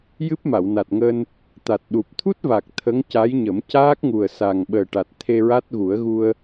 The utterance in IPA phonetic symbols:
j ɨ˦˥ p̚ m a˨˩˨ w n a˨˩ t̚ ŋ əː˧ n | t̪ a˨˩ t̚ ɗ u˨˩ p̚ t̪ʰ u˦˥ t̚ v a˨˩ k̚ t̪ʰ ə˧˥ ŋ c a˧˥ j ɲ ə˨˩˦ m c aː˦˥ k̚ ŋ u˨˩ ə̯ s a˨˩ ŋ ɓ əː˨˩ ʈ a˨˩ t̚ t̪ʰ e˧ ɹ a˦˥ t̚ ɣ u˨˩˦ ə̯ ɣ u˧ ə̯

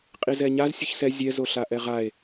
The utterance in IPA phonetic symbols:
qʼ i z ɛ ɲ a z sʲ u ç s ɛ zʲ ɛ z o ɬ a ʔ ɛ ʁ a e̯

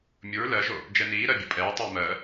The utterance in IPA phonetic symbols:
mʲ u ɹ l ɜ ʒ o | d͡ʒ ɛ n iː ɾ ɜ bʲ o pʼ ɛː tˤ iː m ɜ

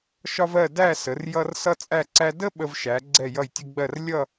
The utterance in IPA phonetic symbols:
ʃ ɒ˥ v ɜ˥˧ d æ˥˧ s ə˩˧ r j ʌ˧ r s ʌ˥ t͡sʼ æ˥˧ ǀ æ˥ d ə˥ ɓ ə˧ v ʃ æ˩˧ ɡ͡ǀ ɛ˧˩ j ʌ˧˩ j tʲ ə˧ ɡ͡b ɜ˧˩ r lʲ ʌ˥˧

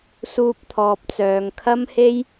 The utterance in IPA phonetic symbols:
s uː˧ p̚ t̪ʰ ɔː˨ p̚ t͡s œː˨ ŋ kʰ ɐ˥ m h e˥ j

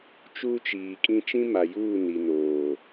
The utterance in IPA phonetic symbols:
t͡ʃ uː˦ t͡ʃ iː˨ kʼ ĩ˦ t͡ʃ ĩ˦ m a˨ j uː˦˨ n i˨ n oː˨

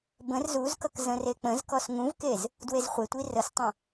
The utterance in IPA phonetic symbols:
b ə̃ r z u z k ʌ k z ə̃ r e k͡p ə̃ z k ɔ s ŋ ũ v k e z | d w e z χʷ e tʷ i r ə s tˤ ə̃

